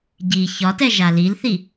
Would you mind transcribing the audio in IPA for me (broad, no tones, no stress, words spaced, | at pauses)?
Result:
ɟi çɒtɛ ʒalilθi